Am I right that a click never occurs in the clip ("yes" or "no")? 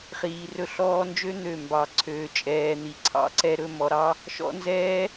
no